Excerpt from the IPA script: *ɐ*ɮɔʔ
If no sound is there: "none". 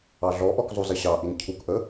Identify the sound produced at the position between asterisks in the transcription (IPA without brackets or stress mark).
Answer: ɑ